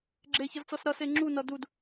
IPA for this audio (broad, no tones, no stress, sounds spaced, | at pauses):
ɡ͡ǁ e ç ʌ z t͡s ɔ s ɾ ʌ s e ŋ͡ǁ u n ʌ d u d